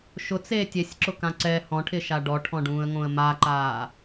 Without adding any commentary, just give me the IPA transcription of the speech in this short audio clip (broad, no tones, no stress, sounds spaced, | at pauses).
ʃ ʊ t͡s eː tʲ e sʲ ǁ ʊ k ã ǀ ɛ h ɔ̃ ʈʰ ɪ ʃ a ɖ ɔ ʈʰ ɔ̃ ɖ ũː ə̯ ŋ õ ə̯ m a ǃ aː